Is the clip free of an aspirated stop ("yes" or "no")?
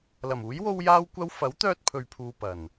no